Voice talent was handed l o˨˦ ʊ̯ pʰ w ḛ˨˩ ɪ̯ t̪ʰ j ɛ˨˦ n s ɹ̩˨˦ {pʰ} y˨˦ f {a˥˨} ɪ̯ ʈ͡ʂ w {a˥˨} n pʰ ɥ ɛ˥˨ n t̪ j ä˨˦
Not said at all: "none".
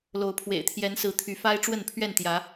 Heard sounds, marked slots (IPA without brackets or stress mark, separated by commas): t̪ʰ, a˦, ə˥˨